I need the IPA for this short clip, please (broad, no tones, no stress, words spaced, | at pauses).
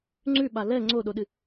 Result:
ŋ͡ǀʉɓa lɛ ŋ͡ǀoɗoɗɨ